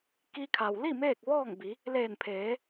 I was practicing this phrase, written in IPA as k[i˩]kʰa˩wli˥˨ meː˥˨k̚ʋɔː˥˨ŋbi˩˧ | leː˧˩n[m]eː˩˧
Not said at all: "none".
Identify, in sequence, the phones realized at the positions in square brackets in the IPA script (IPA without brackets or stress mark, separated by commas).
i˧, pʰ